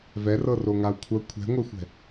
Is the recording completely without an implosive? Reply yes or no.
yes